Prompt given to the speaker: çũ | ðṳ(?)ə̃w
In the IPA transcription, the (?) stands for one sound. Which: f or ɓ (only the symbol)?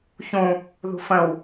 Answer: f